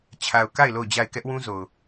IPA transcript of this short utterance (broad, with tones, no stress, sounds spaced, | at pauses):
t͡ɕʰ a˨ ʊ̯ k a˦˨ ɪ̯ l o˦˨ ʊ̯ d͡ʑ a˦˨ ɪ̯ k ɛ˦ ʔ w ũ˦ z o˨ ʊ̯